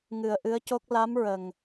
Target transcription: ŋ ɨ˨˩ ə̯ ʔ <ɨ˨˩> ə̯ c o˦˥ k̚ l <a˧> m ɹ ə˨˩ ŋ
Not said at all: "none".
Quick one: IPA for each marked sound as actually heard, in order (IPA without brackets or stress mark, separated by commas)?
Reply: ɨ˧˥, a˧˥